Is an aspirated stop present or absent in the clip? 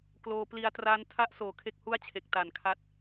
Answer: present